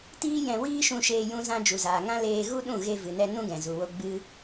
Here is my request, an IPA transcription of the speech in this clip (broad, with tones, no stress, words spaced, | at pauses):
tiː˦jɛ̃˧ wiː˦ʃũ˧ʃeː˧ jũ˧zã˧ d͡ʒu˨zaː˨ŋã˦ leː˧ɣu˦ɗũ˦˨ ɣe˧vɨ˨nɛ˧ nũ˦ɡɛ̃˨zu˨wo˧ ɡ͡bɨ˦